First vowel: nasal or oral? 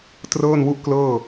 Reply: oral